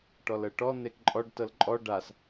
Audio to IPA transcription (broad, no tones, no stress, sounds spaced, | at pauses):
ʈ ɔ l ɤ ʈ ɔ n̪ e k ǃʼ ɔ ɖ t ɤ l ǃʼ ɔ ɖ a s